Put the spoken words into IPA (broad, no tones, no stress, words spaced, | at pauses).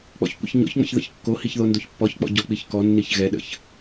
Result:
k͡pɔ̰çkʷə̰çɲɔ̰çŋ͡mə̰ç ðə̰çkːohiç ðondoçpːɔçk͡pɔ̰ ɟɔk͡piçkɔnːiç ɣɛɗə̰ç